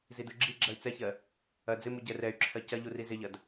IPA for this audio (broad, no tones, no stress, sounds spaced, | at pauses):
z i d u ɡ͡ǁ i ɡ͡ǁ ɐ y̯ t͡s ɛ ç ɜ | ɐ d͡z ɪ m u ɟ ɛ r ɛ y̯ ǁʰ ɜ c ɐ ʎ u r i z ɪ ʎ ɐ d